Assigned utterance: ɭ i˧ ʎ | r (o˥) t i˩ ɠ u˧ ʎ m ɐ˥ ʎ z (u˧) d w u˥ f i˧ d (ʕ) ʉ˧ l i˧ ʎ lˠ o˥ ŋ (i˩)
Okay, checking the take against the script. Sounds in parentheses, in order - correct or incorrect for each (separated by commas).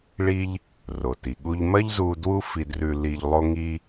incorrect, correct, incorrect, incorrect